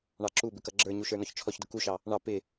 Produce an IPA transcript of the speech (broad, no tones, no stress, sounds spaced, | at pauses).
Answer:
ɳ ɑ ǁ u b ɪ k ʌ ɡ͡ǁ ə˞ ɲ u ʃ ə˞ n ɔ ç t͡ʃʰ ɔ ç d ʊ k u ʃ ɑ | ɳ ɑ p ɪ